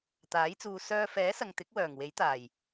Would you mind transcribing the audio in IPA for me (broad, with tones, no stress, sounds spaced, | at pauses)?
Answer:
t̪ aː˨˥ j t͡s uː˨ s œː˧ f ɛː˨˥ s ɐ˨ ŋ t̪ ɪ˨˥ k̚ w œː˨˩ ŋ w e˨˥ j t̪ aː˨˩ j